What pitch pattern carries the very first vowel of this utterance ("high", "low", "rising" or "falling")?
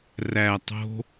low